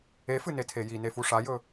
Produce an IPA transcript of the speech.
e f ɨ n e tʰ e j i n e f u ʂ a j ɵ

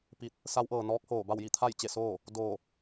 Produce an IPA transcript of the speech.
p i˧˥ t̚ | s a˧˥ w ʔ ɤː˩ n ɔː˧˥ k̚ h oː˧˩ b a˥˨ w j i˥˨ t̪ʰ a˥˨ j t͡ɕ e˥˨ s oː˥˨ | d oː˧˩

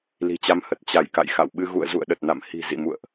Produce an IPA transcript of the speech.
l i̤˨˩ t͡ɕ a˨˦ m h ə˨˩ t̚ t͡ɕ a˧˩ j k a̰˧˨ j x a̰˧˨ w ɓ ɨ˧ ɣ ṵ˧˨ ə̯ z ṵ˧˨ ə̯ ɗ ə˨˩ t̚ n a̰˧˨ m h i̤˨˩ z ḭ˧˨ m ṵ˧˨ ə̯ ʔ

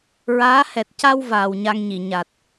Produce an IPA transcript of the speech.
ɹ aː˧˥ h ɛ˨˩ t̚ c a˧ w v aː˨˩ w ɲ a˧ ŋ ɲ i˨˩˨ ɲ a˨˩ t̚

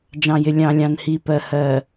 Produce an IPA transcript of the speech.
d͡ʒ ɑ̃˨ j ɪ˨ lʲ ɑ̃˨ lʲ ɑ̃˨ n h i˨ p ɜ˨ h ɜ˨

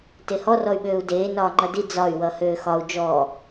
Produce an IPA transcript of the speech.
t e h ɔ r ɔ y̯ ɓ øː u̯ d eː n ɒː ŋ͡ǃ ʌ d i d͡z ɒ y̯ w ʌ h øː x ɒ u̯ d͡ʒ ɔː

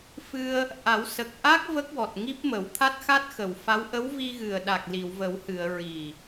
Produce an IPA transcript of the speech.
f ɨ˧ ə̯ | ʔ a˨˩˦ w s ə˨˩ k̚ ʔ a˦˥ k̚ v ə˦˥ k̚ w ɔ˨˩ t̚ ŋ i˦˥ p̚ m ə˨˩˦ w t̪ʰ a˦˥ t̚ x a˦˥ t̚ x ə˨˩˨ w f a˧˥ w ʔ ə˧˥ w v i˧ ɣ ɨ˨˩ ə̯ ɗ a˨˩ k̚ l i˨˩˨ w v ə˨˩˦ w h ɨ˨˩˨ ə̯ ɹ i˨˩

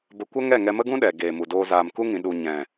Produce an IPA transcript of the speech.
b ə˧ kʷ ə˦ ŋ ɛ˦˨ ŋ ɛ˧ m ə˦ ɡ ũ˦ ɗ ɛ˨ ɡ eː˨ m u˨ d oː˧ z aː˨ m k u˦ ŋ ĩ˨ ɗ u˨ ɲ ɛ̃˨

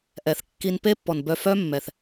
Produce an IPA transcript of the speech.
ʔ ɛ˨ θ kː i˧ n p e˦ pː ɔ˨ n b œ˧ f œ˦ mː ɛ˨ θ

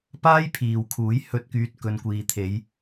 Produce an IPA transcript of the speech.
p aː˥ j pʰ iː˨ w kʰ uː˨˥ j h ɵ˧ t̚ k yː˧ t̚ k ɵ˨ n kʷ iː˨ t̪ʰ e˨˧ j

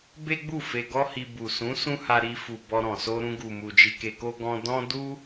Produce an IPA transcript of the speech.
b e˦ ɡ͡b u˦˨ f e˧ ɡ ɔ˦ h i˧ b u˨ s ũ˨˦ s ũ˦ h a˧ ɾ i˧ f u˨ b ɔ˧ ɾ ɔ̃˨ s o˧ ɾ ũ˧ ɡ u˨ m u˨ d͡ʒ i˧ k e˧ k o˦ ɡ ɔ̃˧ d ɔ̃˦ d u˦

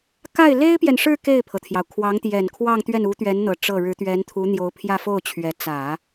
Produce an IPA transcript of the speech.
k a˥˩ ɪ̯ l e˥ ɪ̯ p j ɛ˨ n ʂ ɻ̩˥˧ k e˥˩ ɪ̯ pʰ ɤ˩ t̪ʰ j ɑ˩ ʊ̯ kʰ w ɑ˧˥ ŋ t̪ j ɛ˨˩ n kʰ w ɑ˥˧ ŋ t̪ ɥ ɛ˥˩ n u˧˥ t̪ ɥ ɛ˧˥ n n̪ ɤ˧˥ ʈ͡ʂ ɤ˥˩ ɻ ɻ̩˧˥ t̪ ɥ ɛ˧˥ n t̪ʰ u˧˥ n̪ j o˧˥ ʊ̯ pʰ j ä˥˧ f o˥˩ ʊ̯ t͡ɕʰ ɥ ɛ˧˥ t͡s ä˨˩˦

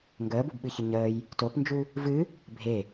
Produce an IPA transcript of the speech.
ŋ ɡ əː b u b ɓ ɨ ç ə ɲ əː j | t o p n d͡ʒ u | v ɨ | bʱ e

